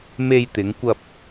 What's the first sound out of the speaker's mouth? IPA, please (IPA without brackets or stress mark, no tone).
m